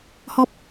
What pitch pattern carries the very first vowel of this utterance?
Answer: low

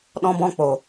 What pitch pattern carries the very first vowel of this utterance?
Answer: high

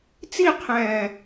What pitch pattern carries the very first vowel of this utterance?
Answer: falling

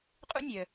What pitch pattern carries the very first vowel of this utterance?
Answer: high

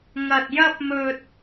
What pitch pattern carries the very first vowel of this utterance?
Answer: low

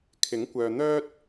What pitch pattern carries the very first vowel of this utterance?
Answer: rising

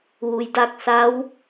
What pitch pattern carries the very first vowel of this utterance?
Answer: low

